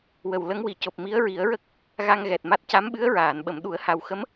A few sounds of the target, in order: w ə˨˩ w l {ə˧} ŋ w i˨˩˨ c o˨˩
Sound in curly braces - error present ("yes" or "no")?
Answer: yes